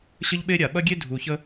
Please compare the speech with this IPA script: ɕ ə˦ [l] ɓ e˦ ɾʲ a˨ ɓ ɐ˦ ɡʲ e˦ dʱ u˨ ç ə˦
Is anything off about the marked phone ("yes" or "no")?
yes